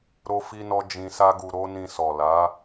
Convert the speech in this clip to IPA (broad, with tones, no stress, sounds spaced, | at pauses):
ɾ o˦ f i˦ n ɔ˦ d͡ʒ ĩ˧ s a˦ ɡ u˧ ɾ o˦ n ĩ˧ s ɔ˨ l a˨˦